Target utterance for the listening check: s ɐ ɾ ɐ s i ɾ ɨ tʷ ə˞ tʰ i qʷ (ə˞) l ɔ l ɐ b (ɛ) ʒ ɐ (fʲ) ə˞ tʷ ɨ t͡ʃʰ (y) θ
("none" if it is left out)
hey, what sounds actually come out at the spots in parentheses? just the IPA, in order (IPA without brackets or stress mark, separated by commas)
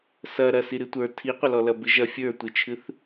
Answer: ɐ, ɨ, fʲ, ɨ